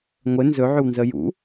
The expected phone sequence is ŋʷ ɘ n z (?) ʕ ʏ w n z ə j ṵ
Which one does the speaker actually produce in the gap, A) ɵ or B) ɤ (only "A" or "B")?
A